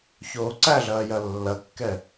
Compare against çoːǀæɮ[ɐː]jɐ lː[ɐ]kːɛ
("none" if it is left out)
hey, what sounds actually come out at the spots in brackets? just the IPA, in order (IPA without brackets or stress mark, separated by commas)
ɐː, ɐ